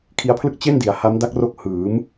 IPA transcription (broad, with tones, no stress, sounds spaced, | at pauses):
kʰ i˦˥ a̯ pʰ l ɯ˥˩ k̚ t͡ɕ e˥˩ n d i˩˦ a̯ h a˦˥ m d a˦˥ k̚ r o˦˥ k̚ h ɯː˩˦ m